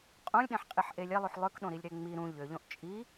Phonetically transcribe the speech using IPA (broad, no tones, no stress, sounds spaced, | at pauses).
qʼ õ lʲ ɗ ẽ ħ qʼ i ħ ʔ e lʲ e lˠ u ħ lˠ ø k ɗ õ ɾ i lʲ ɾ e ŋ͡m i ɾ ũ ʎ ø ʎ õ ʔ t͡ʃʼ i